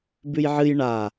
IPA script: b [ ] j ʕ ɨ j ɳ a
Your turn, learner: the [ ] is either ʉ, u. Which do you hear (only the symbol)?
ʉ